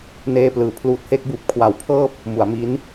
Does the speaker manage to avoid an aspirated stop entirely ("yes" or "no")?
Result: no